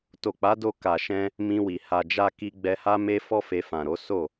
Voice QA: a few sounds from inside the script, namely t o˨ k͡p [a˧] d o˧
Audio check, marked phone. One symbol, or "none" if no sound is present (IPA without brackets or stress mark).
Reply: a˨˦